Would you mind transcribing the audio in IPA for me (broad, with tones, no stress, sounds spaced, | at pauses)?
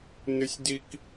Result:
n ɨ˥ sʲ d i˥ k